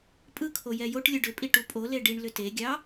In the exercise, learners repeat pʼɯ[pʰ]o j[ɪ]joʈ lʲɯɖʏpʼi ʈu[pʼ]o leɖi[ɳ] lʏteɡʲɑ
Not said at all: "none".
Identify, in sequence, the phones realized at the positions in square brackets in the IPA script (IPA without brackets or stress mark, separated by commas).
kʰ, ɛ, pʼ, ɳ